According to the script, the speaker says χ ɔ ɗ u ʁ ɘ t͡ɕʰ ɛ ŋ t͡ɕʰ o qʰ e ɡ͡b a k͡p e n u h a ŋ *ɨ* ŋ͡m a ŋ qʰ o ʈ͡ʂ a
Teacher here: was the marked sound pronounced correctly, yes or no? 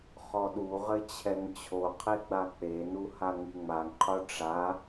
yes